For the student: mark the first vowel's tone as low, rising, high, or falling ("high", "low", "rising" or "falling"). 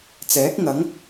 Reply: rising